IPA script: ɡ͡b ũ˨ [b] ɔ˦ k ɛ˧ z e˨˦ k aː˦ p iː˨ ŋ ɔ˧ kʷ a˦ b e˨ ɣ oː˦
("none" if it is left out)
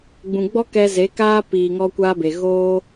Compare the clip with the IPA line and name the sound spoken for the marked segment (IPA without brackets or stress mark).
ɡ͡b